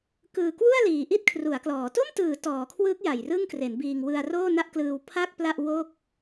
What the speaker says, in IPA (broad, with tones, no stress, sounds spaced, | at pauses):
k ɯː˨˩ k w u˥˩ a̯ l iː˨˩ ʔ i˥˩ t̚ kʰ r u˩˦ a̯ k l ɔː˩˦ t o˥˩ m t ɯː˩˦ t ɔː˩˦ kʰ w ɯː˦˥ k̚ j a˨˩ j r ɯ˥˩ ŋ k r e˩˦ n b iː˧ ŋ w ɯ˧ a̯ r oː˥˩ n a˥˩ ʔ k l ɯː˧ w pʰ a˥˩ k̚ p l a˥˩ ʔ w o˥˩ k̚